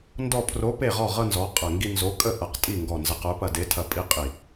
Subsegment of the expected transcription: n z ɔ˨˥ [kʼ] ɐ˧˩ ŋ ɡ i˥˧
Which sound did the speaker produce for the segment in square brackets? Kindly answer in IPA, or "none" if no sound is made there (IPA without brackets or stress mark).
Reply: qʼ